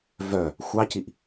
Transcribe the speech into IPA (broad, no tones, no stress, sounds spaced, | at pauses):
v œ | xʷ ɑ c i ʔ